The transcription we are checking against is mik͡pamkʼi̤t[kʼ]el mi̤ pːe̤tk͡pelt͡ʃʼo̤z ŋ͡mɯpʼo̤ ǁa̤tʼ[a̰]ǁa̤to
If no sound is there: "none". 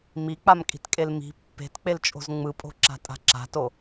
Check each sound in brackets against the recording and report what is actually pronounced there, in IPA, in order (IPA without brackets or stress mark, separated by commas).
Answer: kʼ, a̤